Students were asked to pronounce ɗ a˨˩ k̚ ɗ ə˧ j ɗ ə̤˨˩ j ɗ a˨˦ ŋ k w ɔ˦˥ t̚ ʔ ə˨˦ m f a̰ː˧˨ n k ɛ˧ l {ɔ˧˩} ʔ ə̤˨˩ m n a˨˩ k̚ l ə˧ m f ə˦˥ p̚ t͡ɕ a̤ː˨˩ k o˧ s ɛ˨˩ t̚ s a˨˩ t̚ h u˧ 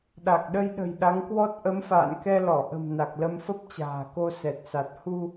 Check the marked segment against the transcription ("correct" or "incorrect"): correct